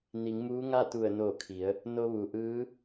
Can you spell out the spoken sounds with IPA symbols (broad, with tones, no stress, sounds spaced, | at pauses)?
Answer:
n i˩˧ ŋ m uː˧˥ ŋ a˥˨ t̪ u˧˩ ə̯ n o˧˩ kʰ i˩˧ ə̯ | n o˧ ʋ u˩ ʔ ɯː˧˥